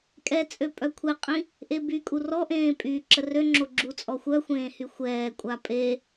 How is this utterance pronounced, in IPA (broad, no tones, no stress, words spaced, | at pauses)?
kʼɛt͡sʼø pʼœkʷʰɛqʼĩ | ʔebykʼu rɔʔẽː pʼyːǁərøŋ͡ǁo ɡ͡ǁut͡sʼɔxʷœxʷẽː hyxʷɛːkʷʼa pʼe